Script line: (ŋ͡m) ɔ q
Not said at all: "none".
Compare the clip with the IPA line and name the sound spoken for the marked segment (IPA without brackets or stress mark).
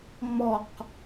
ŋ͡m